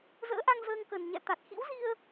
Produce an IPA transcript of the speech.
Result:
z ə̰ː˧˥ ʔ a˧ ŋ z əː˧ ŋ k ə˨˩ n ɲ ɛ̰˧˨ t̪ a˨˩ t̚ x ḭ˧˥ w z i˧ ə̯

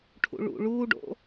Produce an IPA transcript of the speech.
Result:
ʈʰ ṵ ɭ ṵ ɭ uː ɖ o̰

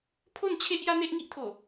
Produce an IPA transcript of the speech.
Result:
pʰ o˥˧ n t͡ɕʰ e˦ ʔ j a˦ n̪ e˦ ʔ ŋ i˦ ʔ t̪ʰ o˨˩

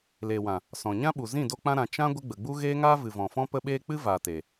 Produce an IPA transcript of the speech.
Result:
l eː˨ w ã˨ | s ɔ̃˨ ɲ ã˦ ɓ u˨ z ĩ˦˨ d o˧ k͡p ã˧ ɾ ã˨ t͡ʃ ã˦ ɡʷ ə˦ ɡ͡b ə˨ ɡ͡b u˦ ɣ eː˦ ŋ aː˦ v ɨ˨ v ɔ̃˨ f ɔ̃˦ p ə˧ ɓ eː˧ k͡p ɨ˦ v aː˨ t e˨

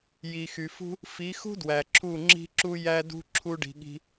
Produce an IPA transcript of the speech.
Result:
j i˨ x y˨ f ṳ˦ | f i˨˦ x ṳ˦ d w æ˨ ǁʰ u˦˨ ŋ͡ǁ i̤˦ ǁ u˦ j æ˦ d ṳ˦ ǁʰ u˦ ɖ i̤˧ ɠ i̤˦

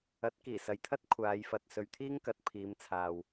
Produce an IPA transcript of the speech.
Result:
ɐ˨˥ t̚ k iː˨˩ s ɐ˨˧ j t̪ʰ ɐ˥ t̚ kʷʰ aː˨˧ j f ɐ˨ t̚ s ɵ˨˧ ɥ t̪ʰ iː˥ ŋ k ɐ˨ t̚ pʰ iː˨˧ m t͡sʰ aː˨ w

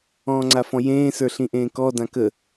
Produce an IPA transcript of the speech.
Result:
ɔ̃ː ŋ͡ǀ a f ɔ̃ j ẽː s ə˞ ɬ ĩ ʔ ẽː k ɔ d ã k ə

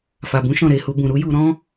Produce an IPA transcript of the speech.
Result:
f a˨ b ũ˨˦ ʃ ɔ̃˦˨ ɾ e˧ h u˧ b ũ˨ ɾ u˨˦ j u˧ ɾ ɔ̃˦

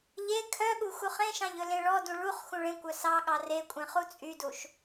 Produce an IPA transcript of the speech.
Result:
ʎ e kʰ œ ɠ u x u χ ẽ ʃ ɑ̃ ʎ ɵ l ẽ ɭ ɔ d ũ ɭ u χ x ũ ɭ ẽ kʷ œ s ɑ ɠ ɑ r e kʷʼ ẽ χ u t͡sʼ y d u ʃ

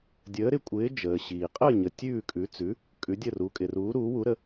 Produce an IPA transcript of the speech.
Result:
dʲ əː˨˥ ɾ ɪ˨˥ kʷʼ ɪː˨˥ d͡ʒ əː˨ ɕ iː˨ qʼ əː˥˨ ɲ ə˨ tʲ ʉː˥˨ kʼ ʉ˨˥ t͡s ʉ˨˥ | kʼ ʉ˨˥ dʲ ə˥˨ r u˨˥ kʼ ɪ˨ r uː˨˥ ɾ uː˨˥ w u˨˥ ɾ ə˨˥

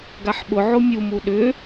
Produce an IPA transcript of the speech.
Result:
ɡ a ħ ɓ ʊ ʕ o mʲ u m u ɗ ʏ

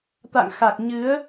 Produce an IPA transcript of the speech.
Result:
t̪ a̰˧˨ ŋ x a˨˩ k̚ ɲ ɨ˨˦ ə̯

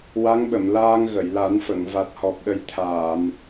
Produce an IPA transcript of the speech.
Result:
w a˧˥ ŋ ɓ ə˨˩˨ m l aː˧ ŋ ɣ ə˨˩˨ j l a˨˩˦ n f ə˨˩˨ ŋ v a˨˩ t̚ h ɔ˨˩ p̚ ɗ ə˨˩˦ j t̪ʰ aː˨˩˨ m

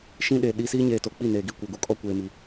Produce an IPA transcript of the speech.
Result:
ʃ ĩ˦ ɗ e˨ ɗ i˦ s iː˦ ɲ eː˨ t o˨ k͡p i˦˨ n eː˨ ɡ i˦˨ kʷ ɛ˨ ɡ u˨ kʼ ɔ˦ kʷ eː˨ m i˨

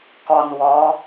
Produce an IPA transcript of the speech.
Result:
k ɔ n w ɔ

